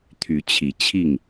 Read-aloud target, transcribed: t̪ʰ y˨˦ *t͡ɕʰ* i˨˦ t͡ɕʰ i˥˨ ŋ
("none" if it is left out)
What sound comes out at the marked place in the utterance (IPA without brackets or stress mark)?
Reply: t͡ɕʰ